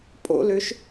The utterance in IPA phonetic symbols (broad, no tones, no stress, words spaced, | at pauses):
pʼo̰løʃ